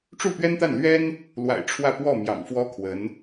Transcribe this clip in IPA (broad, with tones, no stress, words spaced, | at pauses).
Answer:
ʈ͡ʂu˥˩pɥɛ˥nt̪a˥˩n lɥɛ˥n | lwa̰˨˩ɪ̯ ʈ͡ʂʰwä˥˧pwɔ˥˩ mjɑ̰˨˩ŋfwɔ˥kʰwə˧˥n